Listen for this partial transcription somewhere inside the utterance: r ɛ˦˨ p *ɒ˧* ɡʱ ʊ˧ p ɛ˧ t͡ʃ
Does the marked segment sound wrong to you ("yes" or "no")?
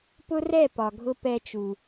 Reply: yes